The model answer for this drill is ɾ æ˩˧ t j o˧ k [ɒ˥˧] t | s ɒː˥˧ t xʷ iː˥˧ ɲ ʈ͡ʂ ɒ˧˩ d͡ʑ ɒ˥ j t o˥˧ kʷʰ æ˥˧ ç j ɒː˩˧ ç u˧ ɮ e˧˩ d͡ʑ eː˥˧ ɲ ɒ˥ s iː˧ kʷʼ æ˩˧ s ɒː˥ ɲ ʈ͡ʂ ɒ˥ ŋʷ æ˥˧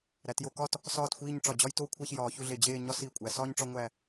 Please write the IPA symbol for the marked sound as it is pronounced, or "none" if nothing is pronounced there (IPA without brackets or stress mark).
ɒ˥˧